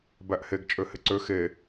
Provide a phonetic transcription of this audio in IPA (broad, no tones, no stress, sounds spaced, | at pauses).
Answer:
b æ ʔ h e ɡ t͡ʃʼ ø h ɪ ǀ ø x e